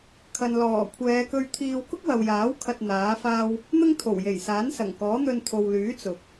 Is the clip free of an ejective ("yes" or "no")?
yes